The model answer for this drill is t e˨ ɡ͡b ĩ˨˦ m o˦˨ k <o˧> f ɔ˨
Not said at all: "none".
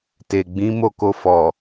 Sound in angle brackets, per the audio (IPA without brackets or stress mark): o˧